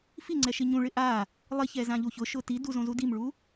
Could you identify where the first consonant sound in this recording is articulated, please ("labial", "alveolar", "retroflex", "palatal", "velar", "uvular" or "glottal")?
labial